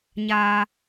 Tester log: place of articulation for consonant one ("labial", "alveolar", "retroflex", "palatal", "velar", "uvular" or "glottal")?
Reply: palatal